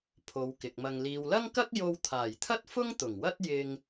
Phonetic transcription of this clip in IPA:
pʰ o˨˧ w k ɪ˨ k̚ m ɐ˧ ŋ l iː˨ w l ɐ˥ ŋ k ɐ˥ k̚ j o˧ w t̪ʰ aː˨˩ j t̪ʰ ɐ˥ t̚ f ʊ˥ ŋ t̪ ʊ˨˩ ŋ w ɐ˥ t̚ j ɪ˧ ŋ

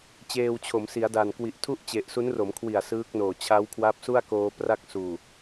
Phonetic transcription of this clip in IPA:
t͡ɕ eː˧ w t͡ɕʰ o˩˦ m s i˩˦ a̯ d a˨˩ n k w i˨˩ ʔ tʰ u˥˩ ʔ t͡ɕ e˨˩ ʔ s u˦˥ n r o˩˦ m kʰ w i˨˩ a̯ s ɯː˦˥ k̚ n oː˨˩ t͡ɕʰ a˦˥ w kʰ w a˦˥ p̚ s u˥˩ a̯ k oː˧ p r a˥˩ k̚ s uː˨˩

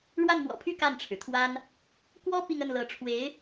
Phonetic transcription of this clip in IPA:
ɻ w a˥˩ n m w ɔ̰˨˩ pʰ y˥˧ k a˥˩ n ʈ͡ʂʰ ɻ̩˩ t̪ʰ w a˥ n | k w ɔ˥ p i˥˧ ŋ ə˥˩ n l ɤ˧˥ ʈ͡ʂʰ w e˧˥ ɪ̯

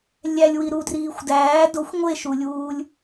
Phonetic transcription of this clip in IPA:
lʲ æ lʲ w i ɾ u d r iː xʷ d æː d o xʷ ŋʷ e ʃ u lʲ uː lʲ

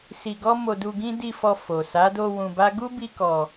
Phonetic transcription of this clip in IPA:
s i˧ ɡ ɔ˦ m o˧ d u˧ ɡ ĩ˦ d i˦˨ f ɔ˧ f o˨ s a˨˦ d o˧ w ũ˧ b a˦ ɡ u˦ b i˧ k ɔ˨

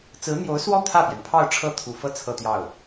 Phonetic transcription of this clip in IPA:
t͡s ɹ̩˧˥ n̪ j o˧˥ ʊ̯ s w ɔ˥˧ t̪ʰ ä˥˩ p j ɛ˩ n pʰ ɑ˥˧ ʊ̯ ʈ͡ʂʰ ɤ˥˩ t̪ʰ u˨˩ f ɤ˥˧ t͡sʰ ɤ˥˧ t̪ j ɑ˥˩ ʊ̯

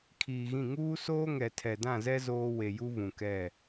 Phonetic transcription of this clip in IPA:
kʰ iː˨ ɣ ĩ˦˨ ŋ uː˦ s oː˦ ŋ ɛ˨ tʰ ɛ˨ d ã˦˨ z ɛ˦ z oː˦ w e˨ j u˦ v ũ˨ k ɛ˦˨

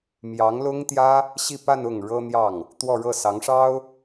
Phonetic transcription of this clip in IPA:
m j ɑ˧˥ ŋ l ʊ˥ ŋ t̪ j ä˥ | ɕ i˥˧ p a˥˧ n ʊ˥˩ ŋ ɻ ɤ˥ n̪ j ɑ˥˩ ŋ | t̪ w ɔ˥˧ ɻ ɤ˥˩ s ɑ˧˥ ŋ ʂ ɑ˥ ʊ̯

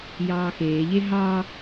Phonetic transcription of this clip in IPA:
j ɑː x eː ʎ e ɦ ɑ

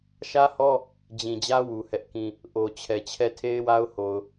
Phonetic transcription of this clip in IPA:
ʃ ä˦ h ɔ˦ | d͡ʑ ĩ˨ d͡ʑ ä˦ w u˨ h ɛ˦ ʔ k ĩ˦ | ʔ o˨ t͡ɕʰ ɛ˨ t͡ɕʰ ɛ˦˨ tʰ e˦ ɪ̯ w a˦ ʊ̯ h o˨ ʊ̯

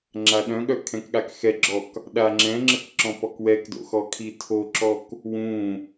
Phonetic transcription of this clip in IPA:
ŋ͡ǁ a ɗ œ̃ ɠ œ kʰ ɛ̃ k ɠ a k x ɛ ɡ͡ǁ ɔ k | ɗ a ŋ͡ǁ ɛ̃ ŋ͡ǁ ə k ǁ ɔ̃ p ɔ k w ɛ k d o̰ x ɔ kʰ i tʰ o ǁ ɔ k | w ũ

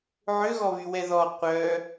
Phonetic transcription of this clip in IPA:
ʕ ø ɣ ɔ β y w ɛ ð ɔ qʷ œ

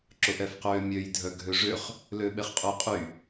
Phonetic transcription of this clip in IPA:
ǁ ʊ ʔ ɛ f q øː mʲ ø j dʱ œ ɡʱ ø ʐ ʏ χ | l øː ɓ e χ qʼ ʊ j qʼ y

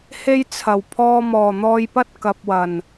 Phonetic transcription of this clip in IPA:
h e˥ j t͡sʰ ɐ˨˩ w pʰ ɔː˧ m ɔː˨˩ n̪ ɔː˧ j p ɐ˥ t̚ k ɐ˨ p̚ w ɐ˨˩ n

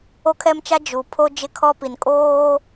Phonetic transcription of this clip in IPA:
o˦ kʰ ɛ˦ m t͡ʃ a˦ d͡ʒ u˨ pʰ o˦ d͡ʒ ɪ˦ kʰ ɔ˦ p i˨ n kʼ oː˦

